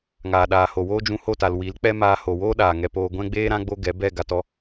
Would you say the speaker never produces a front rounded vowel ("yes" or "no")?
yes